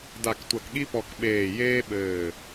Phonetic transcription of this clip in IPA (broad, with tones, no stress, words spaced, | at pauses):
da˧˩ktʷɐ˧˩k ɠi˥pɔ˧˩k ɓeː˧˩ jeː˥ɓɘː˧˩